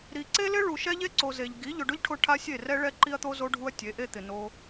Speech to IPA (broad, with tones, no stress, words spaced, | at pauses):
ɾi˨ǀe˦lɪ˦ ɭu˨ʃɛ˦ʎe˦ǀo˨ ze˨ʎ ɡi˨˦ ʎʊ˨ɖʊ˦ʎʈʰʊ˧ ʈʰa˦sʲe˦˨rɛ˦ ɭɛ˦ǃi˦ɐ̯t̪o˦ zo˧ɖʱu˧ɐ̯ tʲe˨˦ʔe˦t̪ɪ˨no˦